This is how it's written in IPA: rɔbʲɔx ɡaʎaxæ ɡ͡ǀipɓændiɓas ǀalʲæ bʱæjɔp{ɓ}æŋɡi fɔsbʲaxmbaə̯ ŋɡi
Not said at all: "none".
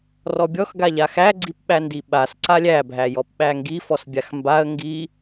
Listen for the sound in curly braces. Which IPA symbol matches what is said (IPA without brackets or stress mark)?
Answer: ɓ